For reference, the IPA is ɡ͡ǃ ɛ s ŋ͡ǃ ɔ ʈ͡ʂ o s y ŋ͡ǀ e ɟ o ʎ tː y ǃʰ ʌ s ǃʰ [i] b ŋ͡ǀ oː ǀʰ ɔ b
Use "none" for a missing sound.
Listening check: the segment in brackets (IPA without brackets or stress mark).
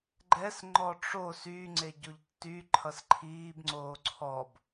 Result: iː